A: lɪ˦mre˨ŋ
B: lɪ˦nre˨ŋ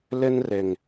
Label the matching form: B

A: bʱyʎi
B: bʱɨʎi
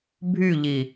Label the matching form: A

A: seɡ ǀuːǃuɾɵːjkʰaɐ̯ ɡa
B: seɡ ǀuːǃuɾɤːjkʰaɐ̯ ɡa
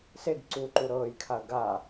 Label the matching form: B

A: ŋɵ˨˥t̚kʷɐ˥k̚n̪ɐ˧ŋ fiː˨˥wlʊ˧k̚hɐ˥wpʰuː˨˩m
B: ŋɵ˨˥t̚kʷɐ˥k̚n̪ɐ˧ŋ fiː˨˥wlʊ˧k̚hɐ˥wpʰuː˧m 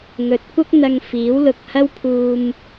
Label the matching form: B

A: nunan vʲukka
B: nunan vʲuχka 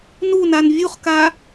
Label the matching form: B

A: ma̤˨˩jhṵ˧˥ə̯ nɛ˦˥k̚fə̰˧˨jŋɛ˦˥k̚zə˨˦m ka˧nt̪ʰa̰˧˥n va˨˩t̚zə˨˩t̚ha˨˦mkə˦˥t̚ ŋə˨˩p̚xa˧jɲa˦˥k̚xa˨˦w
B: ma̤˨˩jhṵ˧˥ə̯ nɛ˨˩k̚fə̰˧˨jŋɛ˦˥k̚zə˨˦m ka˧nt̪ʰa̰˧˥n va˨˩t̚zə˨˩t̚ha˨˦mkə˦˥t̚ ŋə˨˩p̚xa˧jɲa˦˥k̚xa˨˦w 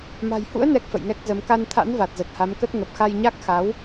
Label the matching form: A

